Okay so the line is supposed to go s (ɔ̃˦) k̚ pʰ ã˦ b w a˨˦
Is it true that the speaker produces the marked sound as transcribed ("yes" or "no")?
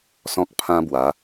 yes